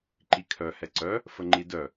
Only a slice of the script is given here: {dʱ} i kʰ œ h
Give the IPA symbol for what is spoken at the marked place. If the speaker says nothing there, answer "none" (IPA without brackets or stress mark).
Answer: ǃ